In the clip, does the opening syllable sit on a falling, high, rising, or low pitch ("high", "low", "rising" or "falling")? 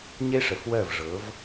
high